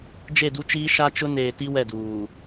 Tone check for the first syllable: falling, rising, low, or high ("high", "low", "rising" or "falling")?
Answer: falling